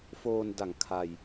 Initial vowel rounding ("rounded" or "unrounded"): rounded